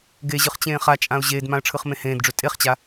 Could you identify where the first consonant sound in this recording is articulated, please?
velar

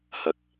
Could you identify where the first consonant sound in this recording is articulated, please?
glottal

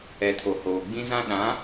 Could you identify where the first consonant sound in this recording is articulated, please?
alveolar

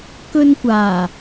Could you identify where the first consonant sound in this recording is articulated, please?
velar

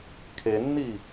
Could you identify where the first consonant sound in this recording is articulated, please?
velar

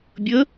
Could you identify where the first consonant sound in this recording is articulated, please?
labial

